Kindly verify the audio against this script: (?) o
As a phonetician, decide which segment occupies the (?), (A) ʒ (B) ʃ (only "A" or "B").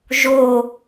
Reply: A